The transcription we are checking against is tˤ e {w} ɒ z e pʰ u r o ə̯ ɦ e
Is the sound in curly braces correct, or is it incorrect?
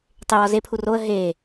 correct